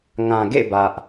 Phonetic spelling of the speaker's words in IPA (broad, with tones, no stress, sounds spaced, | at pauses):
ŋ ã˨ ɡ ḛ˦˨ b ä˦ ʔ